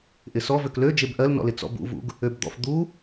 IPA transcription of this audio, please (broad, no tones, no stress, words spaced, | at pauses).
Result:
ʔɪsɔ vøklø d͡ʒebʔɜlnɔ̰lɪ t͡sɔ̰bṵvṵɡ | øbd̪ɔ̰f d̪u